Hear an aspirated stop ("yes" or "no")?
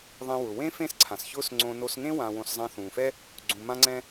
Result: yes